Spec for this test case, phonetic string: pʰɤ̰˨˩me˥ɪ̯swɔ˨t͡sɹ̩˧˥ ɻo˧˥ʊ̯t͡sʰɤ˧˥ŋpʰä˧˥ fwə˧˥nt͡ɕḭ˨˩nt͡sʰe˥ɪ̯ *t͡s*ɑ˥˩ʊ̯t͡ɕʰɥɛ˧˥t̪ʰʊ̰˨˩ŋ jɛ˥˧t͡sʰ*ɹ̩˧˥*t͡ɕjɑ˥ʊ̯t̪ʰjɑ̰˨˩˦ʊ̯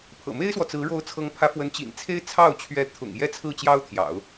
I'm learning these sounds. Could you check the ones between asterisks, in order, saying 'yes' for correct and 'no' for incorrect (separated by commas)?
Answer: no, no